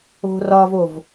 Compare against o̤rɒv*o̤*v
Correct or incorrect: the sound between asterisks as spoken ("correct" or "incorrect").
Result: incorrect